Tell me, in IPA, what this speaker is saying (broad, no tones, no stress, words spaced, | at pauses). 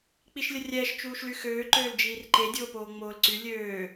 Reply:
k͡piʃlʲərʲɛːʃ t͡ʃuːʃlyxøː ǃøːld͡ʒiːrǃe dʲoːpoːŋ͡moːlǀy lʲøː